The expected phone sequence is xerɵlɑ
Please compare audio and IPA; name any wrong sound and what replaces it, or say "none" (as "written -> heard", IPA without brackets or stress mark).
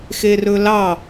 none